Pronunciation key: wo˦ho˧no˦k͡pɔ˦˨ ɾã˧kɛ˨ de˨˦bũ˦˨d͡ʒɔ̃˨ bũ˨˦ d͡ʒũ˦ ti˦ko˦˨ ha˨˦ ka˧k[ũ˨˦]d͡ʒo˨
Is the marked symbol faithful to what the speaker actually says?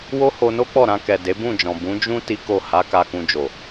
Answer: no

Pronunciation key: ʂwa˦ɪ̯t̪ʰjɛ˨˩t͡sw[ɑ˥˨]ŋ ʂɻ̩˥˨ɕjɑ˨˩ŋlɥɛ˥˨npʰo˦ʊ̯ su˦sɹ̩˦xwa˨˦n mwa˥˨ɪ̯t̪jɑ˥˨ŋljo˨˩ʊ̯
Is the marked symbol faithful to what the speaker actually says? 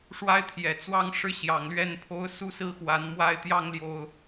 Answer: no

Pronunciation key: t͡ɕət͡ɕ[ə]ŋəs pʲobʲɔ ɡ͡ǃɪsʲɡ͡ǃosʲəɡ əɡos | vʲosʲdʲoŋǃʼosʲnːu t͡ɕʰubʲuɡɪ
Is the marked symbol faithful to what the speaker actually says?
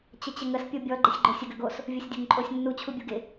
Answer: yes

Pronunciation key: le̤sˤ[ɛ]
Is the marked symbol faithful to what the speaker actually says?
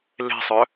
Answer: no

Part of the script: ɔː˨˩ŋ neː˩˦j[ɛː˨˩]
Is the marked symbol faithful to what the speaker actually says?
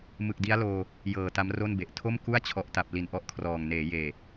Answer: no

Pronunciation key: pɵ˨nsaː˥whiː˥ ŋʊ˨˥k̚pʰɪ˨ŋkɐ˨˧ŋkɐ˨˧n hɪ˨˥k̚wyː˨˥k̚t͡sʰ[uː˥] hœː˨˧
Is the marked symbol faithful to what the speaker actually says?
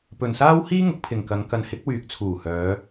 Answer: no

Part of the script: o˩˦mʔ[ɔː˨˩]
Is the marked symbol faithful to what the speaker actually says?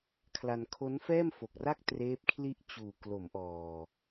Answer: yes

